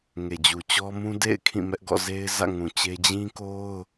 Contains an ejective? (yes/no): no